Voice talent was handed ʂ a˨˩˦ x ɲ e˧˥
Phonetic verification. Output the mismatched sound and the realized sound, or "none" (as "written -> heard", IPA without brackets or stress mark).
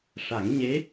x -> ŋ